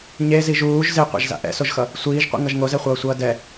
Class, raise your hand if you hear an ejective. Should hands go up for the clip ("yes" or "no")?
no